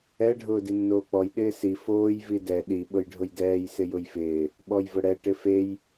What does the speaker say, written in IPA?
ɛ ɖʱ ʊː d i nː oː k͡p ɔ j ɗ ɪː s i f oː j v i d ɛ ɗ i ɓ ʊ j ɖʱ ʊ j d ɛː j s ɪ j ʊ j f ɪː | ɓ ɔ j v ʊ ɽ ɛ ʈ ɪ f e j

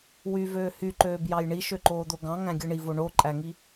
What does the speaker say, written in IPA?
w y v øː h y ǃ øː b j ɑ j ɳ i ʃ ø ǃ oː d̪ o ɡ ɑ̃ ŋ æ̃ ɡʲ ɯ ɳ i v o ɳ o ǃʼ æ ŋ i

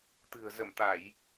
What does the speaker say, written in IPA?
t̪ ɨ̤˨˩ ə̯ z ə˧˩ m t̪ a˧˩˨ j

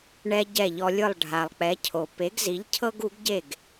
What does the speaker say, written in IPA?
ɳ ɛ˧ ɟ ɛ˥˩ ʎ ɔ˧ lʲ ɯ˥˩ lˠ ɖʱ a˩ lˠ k͡p ɛ˩˥ cʰ o˩ p e˩˥ ɡ z i˩˥ ʎ cʰ ɤ˥ ɡ u˩˥ ɡ ɟ e˥˩ ɡ

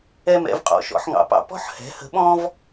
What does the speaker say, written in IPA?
ɛ˦ m ɛ̰˩˥ v qʼ ɔ̰˩˥ ʃ ɔ̰˩˥ ħ ŋ ɑ̰˩˥ p ɑ̰˩˥ p ɔ̤˦ ħ h ɛ̤˩˥ h ə̤˩˥ ɓ ɔ̃˦ v

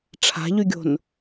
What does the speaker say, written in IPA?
ʈ͡ʂʰ a̤ ʎ y ɡʲ o̤ n

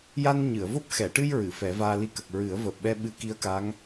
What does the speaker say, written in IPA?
j a˧ n ɲ ɨ˨˩˨ ə̯ v o˦˥ p̚ x ɛ˨˩˨ ʈ ɨ˧ j ɹ ɨ˨˩˨ f ɛ˨˩˦ v aː˧ l i˧ k ə˨˩ k̚ ɹ ɨ˨˩˦ ə̯ v əː˨˩ p̚ ɓ ɛ˧ ɓ ɨ˧˥ k i˧˥ ə̯ k a˧˥ ŋ

